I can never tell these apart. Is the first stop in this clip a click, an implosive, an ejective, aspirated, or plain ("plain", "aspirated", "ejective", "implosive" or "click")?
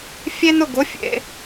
plain